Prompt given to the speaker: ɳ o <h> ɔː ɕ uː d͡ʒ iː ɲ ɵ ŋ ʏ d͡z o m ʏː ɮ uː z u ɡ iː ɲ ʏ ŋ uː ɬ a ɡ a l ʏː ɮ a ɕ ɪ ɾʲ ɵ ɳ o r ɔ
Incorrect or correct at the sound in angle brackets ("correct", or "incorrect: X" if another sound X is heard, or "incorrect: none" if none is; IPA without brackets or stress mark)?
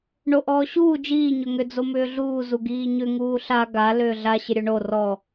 incorrect: ʔ